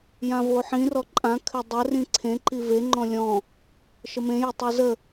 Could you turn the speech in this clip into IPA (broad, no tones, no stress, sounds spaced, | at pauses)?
j ã v o ħ ĩ r ɔ ǃʼ ã kʰ ɘ dˤ ɘ r ĩ ǀʰ ẽ ǃ i v e ŋ͡ǃ ɔ̃ lʲ ɔ̃ | ʃ ə m ẽ j ə tˤ e z ə